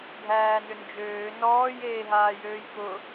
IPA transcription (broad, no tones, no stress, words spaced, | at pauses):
dʱæːnʏnd͡ʒøː nɔːj eːɦaːjøːjkʊ